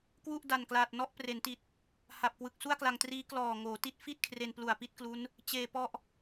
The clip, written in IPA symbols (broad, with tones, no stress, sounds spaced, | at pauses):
k w u˥˩ ʔ d a˨˩ n k l aː˨˩ t̚ n ɔ˦˥ ʔ p r e˩˦ n t i˨˩ t̚ | h a˨˩ p̚ k w ɯ˨˩ k̚ s u˥˩ a̯ k l a˧ ŋ t r iː˦˥ k l ɔː˨˩ ŋ oː˩˦ t i˦˥ t̚ f i˥˩ t̚ kʰ r e˧ n p l u˨˩ a̯ p i˥˩ t̚ k l u˦˥ n | t͡ɕ eː˨˩ p ɔ˦˥ ʔ